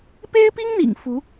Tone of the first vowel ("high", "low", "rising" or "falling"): high